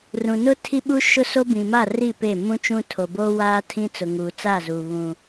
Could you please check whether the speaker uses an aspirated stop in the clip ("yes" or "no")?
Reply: yes